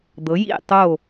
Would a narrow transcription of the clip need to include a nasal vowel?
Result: no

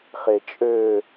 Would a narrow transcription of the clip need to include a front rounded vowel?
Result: yes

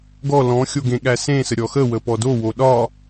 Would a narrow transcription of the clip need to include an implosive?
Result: yes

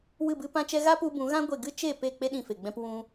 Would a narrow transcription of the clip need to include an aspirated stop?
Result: no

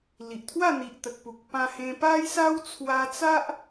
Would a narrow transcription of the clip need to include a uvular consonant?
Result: no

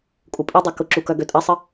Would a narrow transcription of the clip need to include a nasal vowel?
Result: no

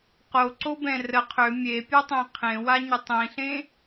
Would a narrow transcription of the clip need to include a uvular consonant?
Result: yes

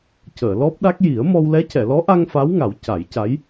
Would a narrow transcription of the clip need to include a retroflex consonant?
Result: no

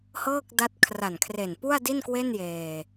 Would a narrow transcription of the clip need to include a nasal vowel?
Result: no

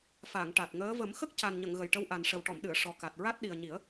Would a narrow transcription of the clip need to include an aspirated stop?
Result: no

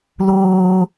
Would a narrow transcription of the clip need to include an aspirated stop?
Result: no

